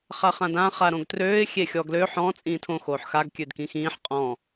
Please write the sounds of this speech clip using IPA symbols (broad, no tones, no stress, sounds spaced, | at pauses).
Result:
χ a χ ã d ã χ a ɾ õ ɡ t r øː ɪ̯ xʲ e xʲ ɔ ɡ l ø ħ ɔ̃ t͡sʼ ĩː tʰ õ x oː ħ x a ɡ kʲ ø d k ĩ x ĩː ħ qʼ ɔ̃